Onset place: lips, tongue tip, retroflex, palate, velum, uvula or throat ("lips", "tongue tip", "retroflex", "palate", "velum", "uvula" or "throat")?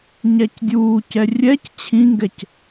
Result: palate